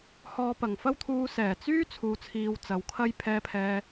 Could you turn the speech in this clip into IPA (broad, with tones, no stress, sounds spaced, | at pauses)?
h ɔː˨ p ɐ˨˩ ŋ f ɐ˥ w t̪ʰ uː˧ s ɛː˨˩ t͡s yː˥ t͡sʰ uː˨˧ t͡sʰ iː˧ w t͡s ɐ˨ w kʰ ɐ˥ j pʰ ɛː˧ pʰ ɛː˧